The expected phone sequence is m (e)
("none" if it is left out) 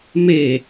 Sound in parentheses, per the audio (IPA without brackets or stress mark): e